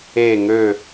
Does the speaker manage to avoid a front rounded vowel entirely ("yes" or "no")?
no